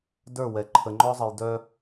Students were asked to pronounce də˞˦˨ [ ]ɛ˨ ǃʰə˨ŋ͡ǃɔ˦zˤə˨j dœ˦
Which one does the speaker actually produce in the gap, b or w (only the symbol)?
w